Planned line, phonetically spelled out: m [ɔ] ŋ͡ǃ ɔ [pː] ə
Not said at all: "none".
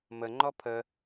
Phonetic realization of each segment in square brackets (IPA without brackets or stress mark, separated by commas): ə, pʰ